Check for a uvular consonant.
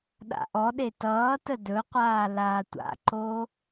present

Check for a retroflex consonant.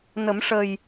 present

